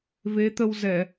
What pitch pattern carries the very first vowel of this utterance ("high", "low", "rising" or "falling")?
rising